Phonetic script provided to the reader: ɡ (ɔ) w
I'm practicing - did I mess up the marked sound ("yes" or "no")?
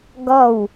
no